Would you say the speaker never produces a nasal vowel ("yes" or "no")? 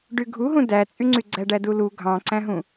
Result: no